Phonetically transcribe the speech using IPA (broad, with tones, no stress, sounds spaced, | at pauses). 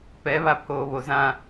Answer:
p ɛ˨˦ β a˨ pʰ oː˨ β o˨ z ã˦˨